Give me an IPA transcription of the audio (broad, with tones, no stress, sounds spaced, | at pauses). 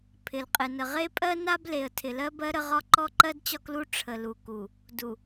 pʰ ɪ˨ l qʼ ɪ˨ n ə˨ ʁ e˦ pʼ ɜ˦ n a˦ b l e˨ ə̯ tʰ ɪ˨ l ɜ˦ b ɜ˦ ɾ ə˦ ʁ ɒ˦ ǃ ɔ˦ ǃ ɜ˦ d t͡ɕ ɒ˦ k l u˦ ʈ͡ʂʰ ə˨ l u˨ k u˨ | d u˨